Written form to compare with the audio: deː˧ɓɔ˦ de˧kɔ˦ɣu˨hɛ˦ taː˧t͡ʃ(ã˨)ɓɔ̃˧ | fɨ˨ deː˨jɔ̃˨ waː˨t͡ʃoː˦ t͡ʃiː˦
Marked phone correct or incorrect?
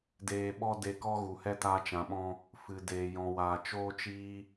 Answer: correct